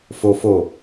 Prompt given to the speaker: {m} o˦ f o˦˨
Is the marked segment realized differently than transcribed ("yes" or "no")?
yes